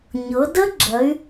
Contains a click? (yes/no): yes